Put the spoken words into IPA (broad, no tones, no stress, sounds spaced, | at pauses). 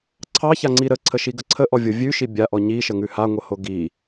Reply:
ǀʰ ɑ ç a ŋ͡ǀ i ɾ ə ǀʰ ə ʃ i ɡ ə ǀʰ ə ʔ ɔ vʲ o vʲ ʉ ʃ i bʲ a ʔ ɔ ɲ i ʃ ə ŋ ʉ h a ŋʷ ə h o ɡ i